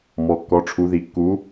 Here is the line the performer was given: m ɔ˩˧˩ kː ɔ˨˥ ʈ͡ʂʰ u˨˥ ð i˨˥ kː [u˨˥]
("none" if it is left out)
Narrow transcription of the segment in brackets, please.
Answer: u˨˥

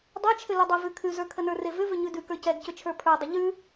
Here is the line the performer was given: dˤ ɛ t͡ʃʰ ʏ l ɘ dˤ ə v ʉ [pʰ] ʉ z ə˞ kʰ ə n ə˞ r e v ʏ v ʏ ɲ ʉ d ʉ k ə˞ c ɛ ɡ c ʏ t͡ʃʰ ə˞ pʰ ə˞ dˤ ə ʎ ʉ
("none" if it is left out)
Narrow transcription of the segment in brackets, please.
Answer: kʰ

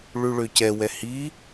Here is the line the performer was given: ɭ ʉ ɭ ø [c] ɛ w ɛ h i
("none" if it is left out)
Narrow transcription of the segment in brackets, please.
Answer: c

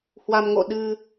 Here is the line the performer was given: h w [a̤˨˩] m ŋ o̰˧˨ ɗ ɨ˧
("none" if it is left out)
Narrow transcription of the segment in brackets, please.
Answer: a˧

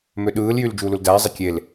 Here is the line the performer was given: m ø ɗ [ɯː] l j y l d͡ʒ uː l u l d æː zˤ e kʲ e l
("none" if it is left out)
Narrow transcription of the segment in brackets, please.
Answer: ɯː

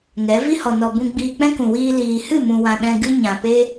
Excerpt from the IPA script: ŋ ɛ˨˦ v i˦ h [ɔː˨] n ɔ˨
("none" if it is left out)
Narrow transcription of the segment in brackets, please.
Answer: ɔ˨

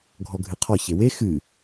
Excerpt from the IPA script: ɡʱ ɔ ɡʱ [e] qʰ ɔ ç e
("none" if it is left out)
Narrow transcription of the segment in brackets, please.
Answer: ɨ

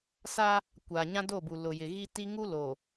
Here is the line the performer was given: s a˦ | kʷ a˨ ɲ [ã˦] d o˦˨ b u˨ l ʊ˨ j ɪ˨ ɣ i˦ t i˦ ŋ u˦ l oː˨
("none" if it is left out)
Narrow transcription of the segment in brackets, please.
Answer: ã˦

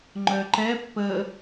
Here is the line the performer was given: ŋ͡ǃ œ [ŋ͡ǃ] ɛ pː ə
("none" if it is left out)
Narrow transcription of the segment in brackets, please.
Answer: ǃ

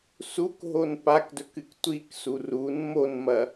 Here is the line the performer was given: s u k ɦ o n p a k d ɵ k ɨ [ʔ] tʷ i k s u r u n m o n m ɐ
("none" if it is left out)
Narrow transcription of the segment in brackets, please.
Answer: k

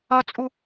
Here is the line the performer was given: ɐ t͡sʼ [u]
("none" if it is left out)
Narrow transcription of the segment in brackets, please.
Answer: u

